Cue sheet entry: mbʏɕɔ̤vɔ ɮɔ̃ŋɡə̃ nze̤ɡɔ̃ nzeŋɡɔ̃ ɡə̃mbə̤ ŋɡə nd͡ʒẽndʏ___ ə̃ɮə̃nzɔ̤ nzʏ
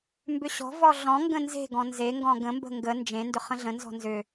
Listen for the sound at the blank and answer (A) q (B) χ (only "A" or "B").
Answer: B